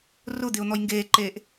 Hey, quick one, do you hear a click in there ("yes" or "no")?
yes